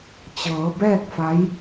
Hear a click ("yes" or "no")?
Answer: no